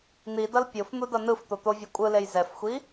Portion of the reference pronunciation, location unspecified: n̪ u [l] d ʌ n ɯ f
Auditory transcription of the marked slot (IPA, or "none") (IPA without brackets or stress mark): none